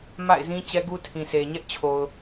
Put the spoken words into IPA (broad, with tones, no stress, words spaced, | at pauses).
ma̰˦˨ɪ̯zĩ˦ t͡ɕɛ˦ɡu˦ tʰĩ˨se˨ ɲɛ˦ʔt͡ɕʰo˨ʊ̯